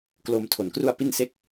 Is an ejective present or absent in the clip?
absent